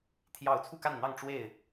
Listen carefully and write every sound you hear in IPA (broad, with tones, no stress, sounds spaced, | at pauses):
t̪ʰ j ɑ˥˨ ʊ̯ t͡sʰ u˥˨ k a˥˨ n n̪ ɑ˥˨ ŋ ʈ͡ʂ w e˥˨ ɪ̯